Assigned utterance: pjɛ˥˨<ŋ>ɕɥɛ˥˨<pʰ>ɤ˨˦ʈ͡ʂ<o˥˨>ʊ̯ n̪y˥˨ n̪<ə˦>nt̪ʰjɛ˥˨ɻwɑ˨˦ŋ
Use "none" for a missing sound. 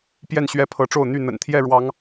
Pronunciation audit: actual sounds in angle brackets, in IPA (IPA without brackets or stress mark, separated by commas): n, pʰ, o˥˨, ə̰˨˩